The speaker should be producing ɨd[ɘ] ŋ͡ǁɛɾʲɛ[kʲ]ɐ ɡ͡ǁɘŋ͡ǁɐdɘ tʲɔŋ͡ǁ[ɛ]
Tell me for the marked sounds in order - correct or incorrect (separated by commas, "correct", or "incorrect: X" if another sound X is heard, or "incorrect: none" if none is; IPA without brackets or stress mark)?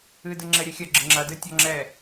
correct, incorrect: xʲ, correct